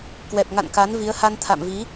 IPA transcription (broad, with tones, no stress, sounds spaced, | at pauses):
k w ɛ˨˩ p̚ ŋ a̰˧˨ n k a˨˦ n v i˨˦ ə̯ h a˧ n t̪ʰ a̰˧˨ m v i˨˦